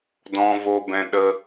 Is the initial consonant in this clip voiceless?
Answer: no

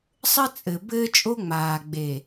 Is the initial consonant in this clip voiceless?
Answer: yes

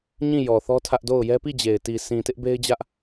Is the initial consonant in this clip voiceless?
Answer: no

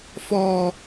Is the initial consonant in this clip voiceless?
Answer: yes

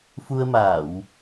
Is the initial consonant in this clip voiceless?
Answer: yes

